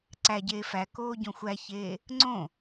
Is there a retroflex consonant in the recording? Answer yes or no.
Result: no